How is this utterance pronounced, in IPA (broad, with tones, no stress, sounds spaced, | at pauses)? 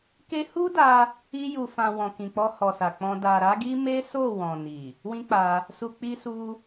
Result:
k e˦ h u˦ d a˧ | i˧ j u˨ f ã˨ w ɔ̃˨ k ĩ˨ k͡p ɔ˧ h ɔ˨ s a˨ k͡p ɔ̃˧ d a˨ ɾ a˨˦ ɡ i˦ m e˦ s o˦˨ w ɔ̃˨ n i˨ | w ĩ˦ k͡p a˧ | s u˨ k͡p i˧ s u˧